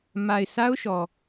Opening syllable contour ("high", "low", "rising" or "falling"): low